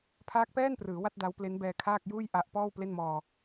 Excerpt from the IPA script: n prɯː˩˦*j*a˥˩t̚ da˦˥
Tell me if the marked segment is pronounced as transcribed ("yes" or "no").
no